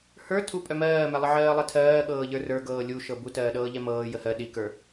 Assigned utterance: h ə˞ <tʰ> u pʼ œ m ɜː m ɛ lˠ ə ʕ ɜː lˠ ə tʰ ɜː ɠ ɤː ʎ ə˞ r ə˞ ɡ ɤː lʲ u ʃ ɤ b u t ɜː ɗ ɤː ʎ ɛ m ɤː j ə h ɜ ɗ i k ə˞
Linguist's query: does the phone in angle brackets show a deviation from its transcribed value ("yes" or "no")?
no